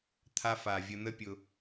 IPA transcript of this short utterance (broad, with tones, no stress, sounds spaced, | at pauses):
t̪ʰ a˧ f a˨ vʲ ə˧ n̪ ə˦ pʲ ʊ˧